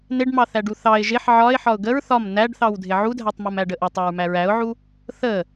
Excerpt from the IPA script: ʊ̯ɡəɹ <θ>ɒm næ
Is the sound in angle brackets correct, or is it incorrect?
correct